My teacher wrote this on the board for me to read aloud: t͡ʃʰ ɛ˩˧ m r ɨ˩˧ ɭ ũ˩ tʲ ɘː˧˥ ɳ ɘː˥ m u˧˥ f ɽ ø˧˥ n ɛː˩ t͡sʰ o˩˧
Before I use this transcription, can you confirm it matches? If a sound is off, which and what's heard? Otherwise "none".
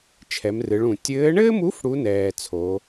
ø˧˥ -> u˧˥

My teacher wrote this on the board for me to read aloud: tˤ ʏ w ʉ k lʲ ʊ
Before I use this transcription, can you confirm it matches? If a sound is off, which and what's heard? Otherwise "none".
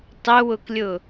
ʉ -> ʊ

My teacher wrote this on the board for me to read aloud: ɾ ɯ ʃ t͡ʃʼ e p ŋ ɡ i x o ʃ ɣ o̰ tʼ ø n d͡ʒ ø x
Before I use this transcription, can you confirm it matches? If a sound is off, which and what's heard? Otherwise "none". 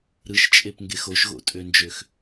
i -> e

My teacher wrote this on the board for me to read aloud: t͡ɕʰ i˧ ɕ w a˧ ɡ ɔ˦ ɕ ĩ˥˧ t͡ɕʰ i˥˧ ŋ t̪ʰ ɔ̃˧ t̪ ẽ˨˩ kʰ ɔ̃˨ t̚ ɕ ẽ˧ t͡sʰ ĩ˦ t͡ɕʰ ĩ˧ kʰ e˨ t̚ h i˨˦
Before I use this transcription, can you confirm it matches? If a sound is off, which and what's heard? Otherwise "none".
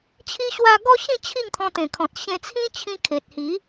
none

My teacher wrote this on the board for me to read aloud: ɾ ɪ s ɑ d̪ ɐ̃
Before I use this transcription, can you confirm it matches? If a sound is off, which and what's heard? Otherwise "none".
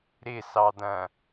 none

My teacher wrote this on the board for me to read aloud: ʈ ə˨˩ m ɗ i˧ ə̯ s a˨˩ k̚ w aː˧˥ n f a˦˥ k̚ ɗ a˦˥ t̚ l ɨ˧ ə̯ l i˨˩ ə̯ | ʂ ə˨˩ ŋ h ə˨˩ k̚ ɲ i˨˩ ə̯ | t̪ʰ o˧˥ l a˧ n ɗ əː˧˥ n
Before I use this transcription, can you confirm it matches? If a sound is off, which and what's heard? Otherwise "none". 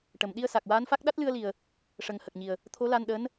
none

